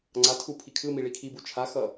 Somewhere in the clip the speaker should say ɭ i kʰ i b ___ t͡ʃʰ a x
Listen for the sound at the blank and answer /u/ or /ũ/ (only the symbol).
u